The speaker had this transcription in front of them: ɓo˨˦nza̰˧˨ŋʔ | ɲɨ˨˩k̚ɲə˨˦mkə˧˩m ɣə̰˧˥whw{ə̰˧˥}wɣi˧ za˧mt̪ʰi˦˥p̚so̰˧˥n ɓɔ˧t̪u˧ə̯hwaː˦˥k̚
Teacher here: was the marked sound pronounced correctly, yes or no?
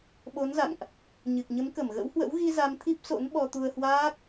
yes